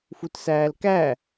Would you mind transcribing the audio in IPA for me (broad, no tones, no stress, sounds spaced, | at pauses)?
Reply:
f u t s æː l k æ